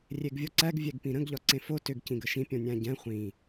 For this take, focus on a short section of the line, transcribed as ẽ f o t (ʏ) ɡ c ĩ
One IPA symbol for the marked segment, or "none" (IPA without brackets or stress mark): ʏ